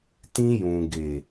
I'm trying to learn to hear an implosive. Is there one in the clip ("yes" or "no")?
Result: no